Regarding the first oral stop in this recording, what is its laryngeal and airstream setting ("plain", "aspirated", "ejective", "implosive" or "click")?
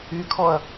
aspirated